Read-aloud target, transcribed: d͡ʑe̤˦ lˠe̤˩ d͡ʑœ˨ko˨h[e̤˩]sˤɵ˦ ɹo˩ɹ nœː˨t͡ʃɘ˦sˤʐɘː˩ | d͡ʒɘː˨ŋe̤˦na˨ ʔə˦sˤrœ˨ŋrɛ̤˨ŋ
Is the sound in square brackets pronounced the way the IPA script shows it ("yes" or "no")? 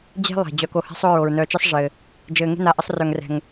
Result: no